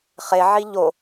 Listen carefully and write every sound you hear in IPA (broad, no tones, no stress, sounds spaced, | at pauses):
χ e ʕ i ʎ o